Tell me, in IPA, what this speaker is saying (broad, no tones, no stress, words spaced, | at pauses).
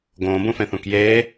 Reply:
ɡõːbũfẽθũk jeː